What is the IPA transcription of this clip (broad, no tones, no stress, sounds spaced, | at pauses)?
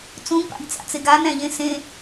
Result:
t͡s ũ ɡ p a̰ ɡ t͡s a̰ t͡s e ɡ a n æ̃ ʎ ẽ s ẽ